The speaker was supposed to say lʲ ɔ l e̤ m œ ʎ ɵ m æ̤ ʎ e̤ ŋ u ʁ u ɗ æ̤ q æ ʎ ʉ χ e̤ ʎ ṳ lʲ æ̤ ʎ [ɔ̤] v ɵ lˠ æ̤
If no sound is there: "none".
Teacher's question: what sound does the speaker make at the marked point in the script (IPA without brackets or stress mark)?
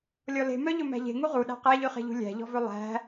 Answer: ɔ̤